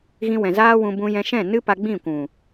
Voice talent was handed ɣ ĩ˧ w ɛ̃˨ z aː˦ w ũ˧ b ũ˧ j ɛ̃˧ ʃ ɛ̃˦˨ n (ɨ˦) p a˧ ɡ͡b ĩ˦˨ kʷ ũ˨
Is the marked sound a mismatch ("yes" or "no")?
no